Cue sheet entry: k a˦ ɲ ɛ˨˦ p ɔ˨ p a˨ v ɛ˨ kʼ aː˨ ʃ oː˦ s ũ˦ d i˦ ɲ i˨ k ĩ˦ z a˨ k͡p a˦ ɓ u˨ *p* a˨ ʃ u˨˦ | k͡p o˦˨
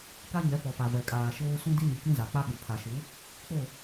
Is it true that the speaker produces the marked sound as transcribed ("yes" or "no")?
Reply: no